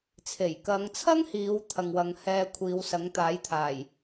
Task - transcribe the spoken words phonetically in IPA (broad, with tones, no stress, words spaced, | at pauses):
t͡sʰe˨˩jkɐ˨˧ŋt͡sʰɐ˥ŋhiː˨˧w t̪ʰɐ˨ŋwɐ˨˧ŋ hɛː˧ kʷʰiː˨˧wsɐ˨˥ŋt̪aː˨˥jt̪ʰaː˨˩j